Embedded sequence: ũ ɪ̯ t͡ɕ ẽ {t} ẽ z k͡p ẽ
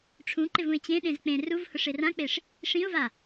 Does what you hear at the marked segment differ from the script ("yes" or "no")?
yes